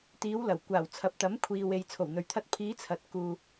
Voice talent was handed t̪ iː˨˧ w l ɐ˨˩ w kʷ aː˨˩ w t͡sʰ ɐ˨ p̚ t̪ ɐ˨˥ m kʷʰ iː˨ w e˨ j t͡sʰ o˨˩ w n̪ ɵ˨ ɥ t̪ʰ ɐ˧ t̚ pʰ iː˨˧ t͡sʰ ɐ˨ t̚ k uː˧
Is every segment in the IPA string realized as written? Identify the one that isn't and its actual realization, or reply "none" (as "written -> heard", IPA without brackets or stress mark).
none